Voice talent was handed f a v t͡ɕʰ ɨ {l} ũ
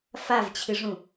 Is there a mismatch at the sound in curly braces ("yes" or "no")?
yes